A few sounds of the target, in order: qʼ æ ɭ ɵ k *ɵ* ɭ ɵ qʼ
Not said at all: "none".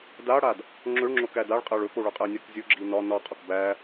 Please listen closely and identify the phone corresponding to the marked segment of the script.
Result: o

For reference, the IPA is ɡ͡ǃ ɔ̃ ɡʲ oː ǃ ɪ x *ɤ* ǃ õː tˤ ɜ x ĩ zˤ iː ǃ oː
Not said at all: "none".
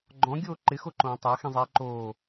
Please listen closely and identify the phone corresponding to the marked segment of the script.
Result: o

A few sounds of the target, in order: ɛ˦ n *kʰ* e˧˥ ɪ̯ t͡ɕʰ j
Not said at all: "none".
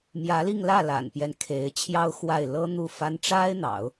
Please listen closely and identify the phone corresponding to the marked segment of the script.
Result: kʰ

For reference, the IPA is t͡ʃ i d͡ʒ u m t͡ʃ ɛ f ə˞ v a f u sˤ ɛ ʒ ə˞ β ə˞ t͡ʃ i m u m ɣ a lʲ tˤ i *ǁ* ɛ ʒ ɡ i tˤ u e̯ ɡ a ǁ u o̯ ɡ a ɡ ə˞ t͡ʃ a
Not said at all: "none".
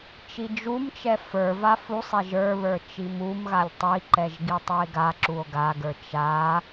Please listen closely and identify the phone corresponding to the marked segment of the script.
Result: ǃ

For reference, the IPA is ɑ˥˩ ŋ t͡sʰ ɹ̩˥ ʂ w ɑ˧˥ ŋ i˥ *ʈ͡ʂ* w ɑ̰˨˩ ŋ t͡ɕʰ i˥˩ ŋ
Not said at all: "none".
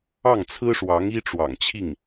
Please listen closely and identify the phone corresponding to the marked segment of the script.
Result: ʈ͡ʂ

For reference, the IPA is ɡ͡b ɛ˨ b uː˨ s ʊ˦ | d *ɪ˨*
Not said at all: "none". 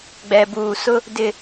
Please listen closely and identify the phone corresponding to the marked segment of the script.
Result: ɪ˨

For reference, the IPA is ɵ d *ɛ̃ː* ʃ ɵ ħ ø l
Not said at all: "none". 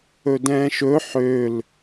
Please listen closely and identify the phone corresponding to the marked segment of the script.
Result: ɛ̃ː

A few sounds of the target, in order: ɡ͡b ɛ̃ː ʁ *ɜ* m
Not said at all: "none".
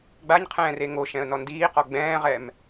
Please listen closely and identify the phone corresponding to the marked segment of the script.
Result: ɛ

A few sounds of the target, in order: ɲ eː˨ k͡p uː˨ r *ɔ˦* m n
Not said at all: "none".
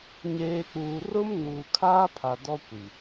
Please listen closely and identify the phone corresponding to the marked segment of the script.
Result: ʊ˦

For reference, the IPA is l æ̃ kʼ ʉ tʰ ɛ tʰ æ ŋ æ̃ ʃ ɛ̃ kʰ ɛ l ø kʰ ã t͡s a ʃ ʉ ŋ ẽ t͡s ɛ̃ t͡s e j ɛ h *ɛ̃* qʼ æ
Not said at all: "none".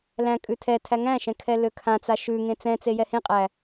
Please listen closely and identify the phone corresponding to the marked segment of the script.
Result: ẽ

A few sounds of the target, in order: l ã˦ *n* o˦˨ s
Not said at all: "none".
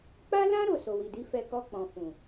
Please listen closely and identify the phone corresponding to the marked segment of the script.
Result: ɾ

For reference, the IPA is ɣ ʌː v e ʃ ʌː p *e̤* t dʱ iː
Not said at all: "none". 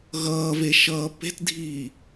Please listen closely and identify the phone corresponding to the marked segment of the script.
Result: e̤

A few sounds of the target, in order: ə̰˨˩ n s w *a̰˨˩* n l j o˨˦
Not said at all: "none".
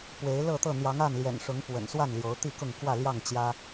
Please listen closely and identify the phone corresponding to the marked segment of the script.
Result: a˥˨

